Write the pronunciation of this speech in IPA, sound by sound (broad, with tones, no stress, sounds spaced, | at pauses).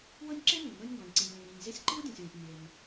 w ɤ˥ nʲ ǁ e˥ n ĩ˩ w n ɤ˥ nʲ ŋ ɡ ɔ̃˩ nʲ ǀ ĩ˩ nʲ l ĩ˩ w ɾ ĩ˩ nʲ z e˥ sʲ ǃ i˥ w dʲ ɔ̃˩ sʲ w ẽ˩ sʲ nʲ e˩ n